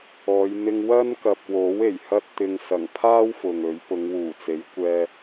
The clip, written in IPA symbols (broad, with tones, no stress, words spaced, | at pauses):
ɔː˨˧j n̪ɪ˧ŋwɐ˥nkɐ˨p̚wo˨˥w e˨˩jhɐ˥t̚t̪ɪ˧ŋ sɐ˨˩ŋpʰaː˥w fʊ˨ŋɵ˨˥ɥ pʊ˨˧ŋwuː˨˩ t͡se˨˥jkʷɛː˧